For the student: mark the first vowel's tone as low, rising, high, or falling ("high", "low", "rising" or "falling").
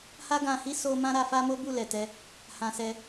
high